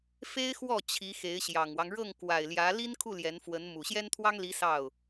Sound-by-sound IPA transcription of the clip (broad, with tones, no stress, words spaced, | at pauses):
fe˥ɪ̯xwɔ˥˩ t͡ɕʰi˧˥xe˧˥ɪ̯ɕjɑ˨˩ŋwɑ˦ŋ ɻɤ˥˩ŋ kwa˨˩ɪ̯ljä˧˥ li˥nkʰu˥˩ ljɛ˧˥nfwə˧˥n mu˨˩ ɕjɛ˥nt̪ʰwɑ˥ŋli˧˥ sɑ˥˩ʊ̯